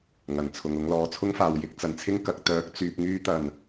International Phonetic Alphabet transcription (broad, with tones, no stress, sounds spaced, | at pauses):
ŋ ɐ˨˩ n t͡sʰ ʊ˨ ŋ ʊ˨˧ ŋ l ɔː˨ t͡sʰ ʊ˥ ŋ f aː˨ w j ɪ˧ k̚ t͡s ɐ˨˩ n t͡sʰ ɪ˥ ŋ k ɐ˨˥ k̚ t̪ œː˨˥ k̚ t͡s yː˨ p̚ ŋ yː˧ t̪ ɐ˨˩ n